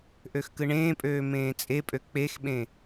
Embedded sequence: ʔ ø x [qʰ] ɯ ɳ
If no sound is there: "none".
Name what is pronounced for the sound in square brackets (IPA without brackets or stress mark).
k